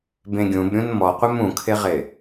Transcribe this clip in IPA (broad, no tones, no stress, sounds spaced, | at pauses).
b ẽ ɡʲ ũ b ɾʲ ũ n m ɔ qʷ ɪ m ũ kʰ ɪ ʁ ɪ